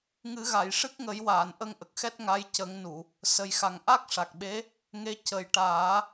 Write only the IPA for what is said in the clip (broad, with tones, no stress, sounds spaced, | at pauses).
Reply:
ŋ ɨ˨˩˦ ɣ a˨˩˨ j ʂ ɨ˦˥ k̚ ŋ ə˨˩˦ j w aː˨˩˨ n ʔ ə˧ ŋ ʔ ə˨˩ k̚ x ɛ˦˥ t̚ ŋ a˧˥ j c ə˨˩˦ ŋ n u˨˩˨ | s ə˨˩ j x a˨˩ ŋ ʔ a˦˥ k̚ ʂ a˨˩ k̚ ɓ e˧˥ | ŋ e˧˥ c ə˨˩ j ʈ aː˨˩˦